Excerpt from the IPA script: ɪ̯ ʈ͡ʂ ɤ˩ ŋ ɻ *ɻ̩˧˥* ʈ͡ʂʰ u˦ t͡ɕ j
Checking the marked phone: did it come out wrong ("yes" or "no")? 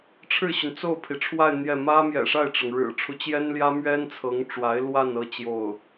yes